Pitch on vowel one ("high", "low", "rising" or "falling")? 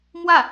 falling